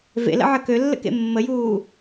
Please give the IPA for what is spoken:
v ḛ l ə̰ ʕ ə k ø lː ə̰ k ḛ mː ə j uː

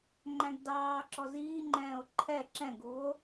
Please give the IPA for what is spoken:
ŋ͡ǃ æ̃ ɡ d ɑː ǁ ɔ z iː ŋ͡ǃ ɛ̃ː o̯ ǃʰ ɛ ǁ ɛ̃ ɡ u o̯

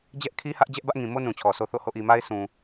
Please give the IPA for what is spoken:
d͡ʑ ɛ˦ ʔ kʰ i˦ h ä˦ ʔ d͡ʑ ɛ˦ ʔ b ä˦ ʔ ŋ ĩ˨ m o˦ n ũ˨ t͡ɕʰ ɔ˨ s o˦ θ o̰˦˨ h o̰˦˨ ʔ i˨ m a˦ ɪ̯ s ũ˨

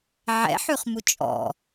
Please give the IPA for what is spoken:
ʕ ɛ̰ ħ ʉ χ m u t͡ʃʼ ɔ̰

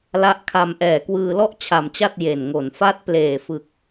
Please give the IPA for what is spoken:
l a˦˥ ʔ kʰ a˧ m ʔ ɛː˨˩ k w ɯː˧ l ɔ˥˩ ʔ t͡ɕʰ a˨˩ m t͡ɕ a˥˩ t̚ j e˨˩ n ŋ o˨˩ n f a˦˥ t̚ p l eː˨˩ f ɯ˨˩ k̚

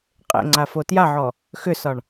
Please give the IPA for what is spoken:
qʼ ḛ ŋ͡ǀ a f o t j a ʕ ɔ | x ʏ s ɒ ɳ

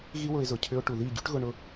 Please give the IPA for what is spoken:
ɣ i˦ w ʊ˧ ɪ̯ z ʊ˨ cʰ ʏ˧ ʊ̯ ʈ u˨ ð i˦˨ ɟ y˦ ʈ ɣ ʊ˧ ɳ ʊ˧

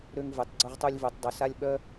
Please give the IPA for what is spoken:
ɾ ø˥ ŋ v ɯ˨˦ tˤ ɡ͡ǀ o˥ ʁ tˤ u˥ lʲ v u˨˦ tˤ dˤ o˨˦ s a˥ lʲ ɓ œ˥

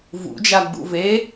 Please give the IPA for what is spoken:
v ṵ d͡ʒ a ɡ͡b ṵ v e

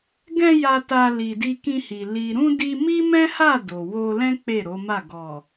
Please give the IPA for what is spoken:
ɡ ɛ̃˧ j a˧ t a˧ l i˨ d i˧ k ĩ˧ h i˨ l i˨ ɾ ũ˧ d i˧ m i˦ m ɛ̃˦ h a˦˨ d o˨ w o˧ l ɛ̃˦ k͡p e˦˨ ɾ o˨˦ m a˦˨ ɡ ɔ˨

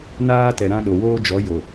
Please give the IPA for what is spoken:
n aː˦ t ɛ˨ ɾ ã˦ ɗ o˨ w oː˦ d͡ʒ ɔ˨˦ j o˨

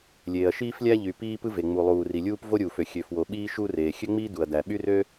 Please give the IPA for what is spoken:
lʲ eː˩ ɐ̯ ʃ iː˥ f lʲ æ˥ ʎ y˩ p iː˥ p ɯ˥ v e˩ ŋ͡m u˩ lˠ uː˩ r i˩ lʲ uː˥ p v o˥ ɾʲ uː˩ f ø˩ xʲ ø˩ f w o˩ ɓ iː˥ ʃ u˥ r eː˩ xʲ ø˥ ŋ͡m iː˥ d u˩ ɐ̯ d æ˩ ɓ y˥ r ø˥

